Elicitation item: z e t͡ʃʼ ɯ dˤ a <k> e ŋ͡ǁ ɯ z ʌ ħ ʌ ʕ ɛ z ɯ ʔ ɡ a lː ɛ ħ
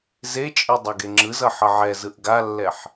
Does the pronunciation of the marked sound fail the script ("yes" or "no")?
yes